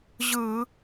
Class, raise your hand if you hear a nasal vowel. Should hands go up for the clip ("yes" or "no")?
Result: no